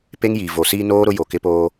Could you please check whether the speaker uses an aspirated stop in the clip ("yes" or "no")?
no